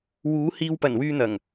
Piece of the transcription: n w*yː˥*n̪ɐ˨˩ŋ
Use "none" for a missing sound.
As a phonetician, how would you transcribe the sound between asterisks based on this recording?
yː˧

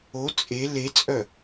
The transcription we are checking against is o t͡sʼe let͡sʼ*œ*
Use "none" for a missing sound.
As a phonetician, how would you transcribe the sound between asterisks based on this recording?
œ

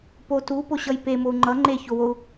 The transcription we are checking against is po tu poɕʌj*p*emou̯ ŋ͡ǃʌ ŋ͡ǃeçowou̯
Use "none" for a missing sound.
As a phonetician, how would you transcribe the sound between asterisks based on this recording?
p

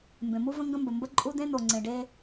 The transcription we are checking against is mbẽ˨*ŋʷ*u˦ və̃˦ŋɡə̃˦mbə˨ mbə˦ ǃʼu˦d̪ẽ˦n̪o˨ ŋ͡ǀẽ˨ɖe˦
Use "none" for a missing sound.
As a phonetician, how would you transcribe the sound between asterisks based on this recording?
m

